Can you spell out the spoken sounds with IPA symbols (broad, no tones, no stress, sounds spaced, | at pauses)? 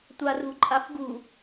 tʷ a r ṳ ǃʼ a f ɡ ṳ